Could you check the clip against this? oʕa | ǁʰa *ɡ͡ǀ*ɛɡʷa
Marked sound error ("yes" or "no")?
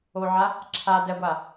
yes